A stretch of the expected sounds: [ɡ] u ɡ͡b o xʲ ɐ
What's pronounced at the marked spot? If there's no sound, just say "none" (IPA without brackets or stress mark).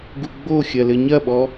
ɡ